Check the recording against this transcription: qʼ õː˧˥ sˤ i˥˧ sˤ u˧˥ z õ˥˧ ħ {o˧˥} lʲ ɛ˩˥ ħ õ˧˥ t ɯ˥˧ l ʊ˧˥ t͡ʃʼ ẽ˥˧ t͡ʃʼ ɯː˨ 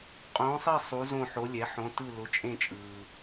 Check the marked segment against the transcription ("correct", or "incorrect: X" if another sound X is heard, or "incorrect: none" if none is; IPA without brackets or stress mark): correct